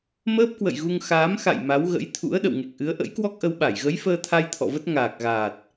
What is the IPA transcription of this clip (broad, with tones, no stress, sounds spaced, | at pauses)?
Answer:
m əː˦˥ p̚ k w ə̰˧˨ j ɣ u˧ ŋ x aː˨˦ m x a̰˧˨ j m a˨˦ w ɣ ə̰˧˥ j t̪ʰ ṵ˧˥ ə̯ ɗ ə̰˧˨ w ŋ e˨˩ k̚ ʔ ɨ˨˦ ə̯ ʔ ə̰˧˥ j k w ɔ˦˥ k̚ ʔ ə˧ w ɓ a˧˩ j ɣ ə˨˦ j f əː˧ t̪ʰ a˧ j t̪ʰ ɔ̰˧˨ v ə˦˥ t̚ ŋ aː˨˩ k̚ ɣ aː˨˩ t̚